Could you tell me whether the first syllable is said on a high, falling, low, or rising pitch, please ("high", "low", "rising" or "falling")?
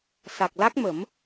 low